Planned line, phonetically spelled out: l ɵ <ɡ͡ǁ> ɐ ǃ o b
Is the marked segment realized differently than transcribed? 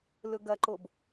yes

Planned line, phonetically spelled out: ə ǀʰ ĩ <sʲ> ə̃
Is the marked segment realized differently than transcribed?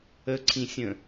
no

